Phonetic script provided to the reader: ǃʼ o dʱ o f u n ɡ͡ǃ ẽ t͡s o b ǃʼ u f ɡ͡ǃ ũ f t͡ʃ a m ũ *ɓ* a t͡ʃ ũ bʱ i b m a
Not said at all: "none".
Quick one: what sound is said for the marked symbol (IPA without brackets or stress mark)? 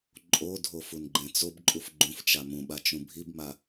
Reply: ɓ